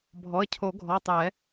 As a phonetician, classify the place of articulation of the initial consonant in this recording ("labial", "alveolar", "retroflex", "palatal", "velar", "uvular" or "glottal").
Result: labial